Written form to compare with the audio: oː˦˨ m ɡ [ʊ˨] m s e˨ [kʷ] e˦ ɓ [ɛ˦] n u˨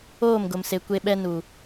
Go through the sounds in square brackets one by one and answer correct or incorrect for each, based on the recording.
correct, correct, correct

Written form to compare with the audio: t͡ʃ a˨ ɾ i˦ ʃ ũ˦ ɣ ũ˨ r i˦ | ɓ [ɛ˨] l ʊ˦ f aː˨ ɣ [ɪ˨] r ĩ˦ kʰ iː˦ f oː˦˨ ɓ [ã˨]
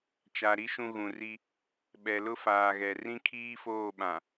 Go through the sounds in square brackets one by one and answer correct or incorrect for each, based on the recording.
correct, incorrect: ɛ˨, correct

